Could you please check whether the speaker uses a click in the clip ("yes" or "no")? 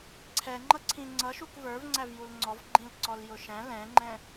yes